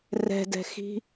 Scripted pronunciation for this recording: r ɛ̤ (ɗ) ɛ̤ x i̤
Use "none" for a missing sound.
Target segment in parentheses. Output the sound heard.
d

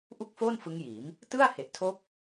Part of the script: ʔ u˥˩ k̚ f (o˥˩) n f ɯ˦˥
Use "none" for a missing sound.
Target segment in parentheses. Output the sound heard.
o˥˩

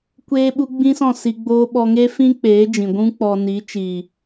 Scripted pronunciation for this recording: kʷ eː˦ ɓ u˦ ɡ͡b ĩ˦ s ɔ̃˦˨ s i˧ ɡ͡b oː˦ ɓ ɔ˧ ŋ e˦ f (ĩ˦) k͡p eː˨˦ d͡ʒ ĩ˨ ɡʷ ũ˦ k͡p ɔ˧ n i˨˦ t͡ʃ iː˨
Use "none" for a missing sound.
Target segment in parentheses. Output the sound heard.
ĩ˦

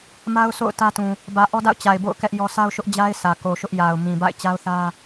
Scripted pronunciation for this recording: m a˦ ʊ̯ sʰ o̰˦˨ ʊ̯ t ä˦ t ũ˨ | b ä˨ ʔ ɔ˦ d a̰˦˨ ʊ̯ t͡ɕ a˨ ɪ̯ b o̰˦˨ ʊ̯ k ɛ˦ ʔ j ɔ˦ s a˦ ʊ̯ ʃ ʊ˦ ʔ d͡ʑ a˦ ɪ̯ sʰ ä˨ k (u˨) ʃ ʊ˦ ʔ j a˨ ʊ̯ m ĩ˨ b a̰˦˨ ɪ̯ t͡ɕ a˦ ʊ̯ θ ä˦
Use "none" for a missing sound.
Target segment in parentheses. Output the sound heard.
o˨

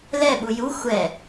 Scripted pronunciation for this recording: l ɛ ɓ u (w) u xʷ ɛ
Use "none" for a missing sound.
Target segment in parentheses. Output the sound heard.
j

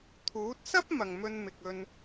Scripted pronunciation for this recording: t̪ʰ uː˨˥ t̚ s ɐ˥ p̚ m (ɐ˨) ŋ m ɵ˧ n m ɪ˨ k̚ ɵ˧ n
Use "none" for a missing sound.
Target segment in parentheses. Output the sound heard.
ɐ˨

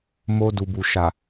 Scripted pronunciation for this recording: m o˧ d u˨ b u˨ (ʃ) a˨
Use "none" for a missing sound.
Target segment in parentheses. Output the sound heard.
ʃ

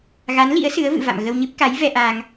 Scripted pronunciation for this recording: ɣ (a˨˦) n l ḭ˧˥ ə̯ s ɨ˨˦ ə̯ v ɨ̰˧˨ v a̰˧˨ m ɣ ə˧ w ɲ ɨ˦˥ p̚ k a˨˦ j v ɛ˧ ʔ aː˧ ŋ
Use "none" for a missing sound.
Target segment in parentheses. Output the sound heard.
a˨˦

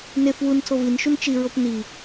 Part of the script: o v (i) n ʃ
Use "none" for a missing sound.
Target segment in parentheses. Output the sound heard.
i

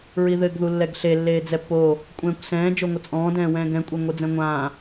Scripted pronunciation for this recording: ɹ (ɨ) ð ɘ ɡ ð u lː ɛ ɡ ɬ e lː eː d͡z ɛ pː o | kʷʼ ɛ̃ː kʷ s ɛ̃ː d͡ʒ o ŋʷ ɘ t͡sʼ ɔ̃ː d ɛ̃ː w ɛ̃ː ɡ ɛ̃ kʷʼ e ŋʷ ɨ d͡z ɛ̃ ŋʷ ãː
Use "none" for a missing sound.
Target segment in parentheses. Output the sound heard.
i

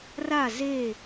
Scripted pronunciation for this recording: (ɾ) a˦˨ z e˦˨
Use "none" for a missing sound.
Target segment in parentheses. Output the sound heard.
r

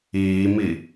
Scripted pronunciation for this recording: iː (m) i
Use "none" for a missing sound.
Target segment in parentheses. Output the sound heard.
m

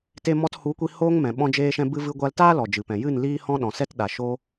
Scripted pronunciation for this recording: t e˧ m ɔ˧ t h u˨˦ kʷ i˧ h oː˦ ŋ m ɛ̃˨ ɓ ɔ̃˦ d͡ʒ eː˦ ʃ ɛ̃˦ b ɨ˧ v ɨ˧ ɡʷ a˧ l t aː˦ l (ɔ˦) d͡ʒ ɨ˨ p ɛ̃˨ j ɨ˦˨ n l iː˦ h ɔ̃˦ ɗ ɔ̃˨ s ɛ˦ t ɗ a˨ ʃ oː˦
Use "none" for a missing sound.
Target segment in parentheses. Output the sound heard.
ɔ˨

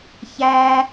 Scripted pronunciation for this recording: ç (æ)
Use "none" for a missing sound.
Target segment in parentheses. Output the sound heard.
æ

